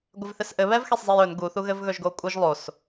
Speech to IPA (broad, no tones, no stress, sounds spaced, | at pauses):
ɡʷ ɪ v θ ɪ s ʔ ɘ β ɛ v x e sˤ zˤ e j ɵ n ɡ u θ u ɣ ɘ v ɣ ɵ ʒ ɡ o kʷʼ ɨ ʒ lˠ o s